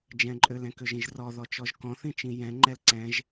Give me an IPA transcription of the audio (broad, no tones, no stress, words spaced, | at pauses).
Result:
d͡ʒɛ̃ǃʼølɛ̃ køʒĩʒrɔðɔ t͡ʃɔʒkɔ̃θĩ t͡ʃĩjɛ̃ŋ͡ǃɛl ǀɛ̃ʒ